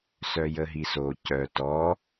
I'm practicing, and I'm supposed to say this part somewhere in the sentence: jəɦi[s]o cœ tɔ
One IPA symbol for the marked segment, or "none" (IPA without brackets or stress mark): s